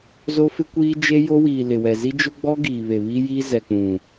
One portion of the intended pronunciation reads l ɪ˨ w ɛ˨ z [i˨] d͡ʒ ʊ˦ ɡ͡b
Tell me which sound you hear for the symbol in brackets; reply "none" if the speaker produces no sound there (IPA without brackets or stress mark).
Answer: i˦